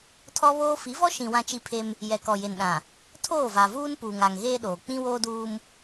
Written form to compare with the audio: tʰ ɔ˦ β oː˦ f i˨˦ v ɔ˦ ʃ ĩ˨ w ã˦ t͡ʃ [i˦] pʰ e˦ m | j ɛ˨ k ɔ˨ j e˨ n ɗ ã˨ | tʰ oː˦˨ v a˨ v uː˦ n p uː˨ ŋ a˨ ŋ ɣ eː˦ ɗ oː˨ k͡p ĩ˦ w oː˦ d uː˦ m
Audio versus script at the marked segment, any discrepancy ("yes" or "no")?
no